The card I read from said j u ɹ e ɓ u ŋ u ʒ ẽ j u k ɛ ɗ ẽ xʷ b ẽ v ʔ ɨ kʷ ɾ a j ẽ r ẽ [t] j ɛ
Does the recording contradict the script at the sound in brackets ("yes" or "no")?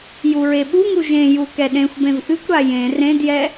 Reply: yes